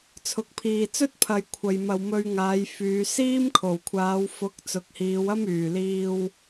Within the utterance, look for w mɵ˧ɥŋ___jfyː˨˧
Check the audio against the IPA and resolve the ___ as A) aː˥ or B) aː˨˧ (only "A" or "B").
B